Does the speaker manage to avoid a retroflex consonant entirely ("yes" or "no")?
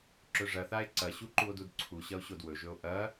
no